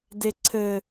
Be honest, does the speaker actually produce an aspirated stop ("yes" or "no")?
yes